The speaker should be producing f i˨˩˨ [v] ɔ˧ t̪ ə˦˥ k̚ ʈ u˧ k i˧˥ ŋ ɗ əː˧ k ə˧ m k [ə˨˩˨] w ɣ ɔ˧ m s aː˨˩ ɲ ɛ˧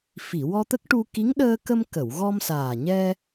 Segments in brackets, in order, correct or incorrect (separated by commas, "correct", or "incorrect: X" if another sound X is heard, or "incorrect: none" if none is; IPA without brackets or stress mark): incorrect: w, correct